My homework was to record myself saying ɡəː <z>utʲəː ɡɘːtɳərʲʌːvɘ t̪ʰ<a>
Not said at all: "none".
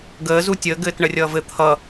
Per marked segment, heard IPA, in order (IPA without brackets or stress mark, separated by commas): z, ʌ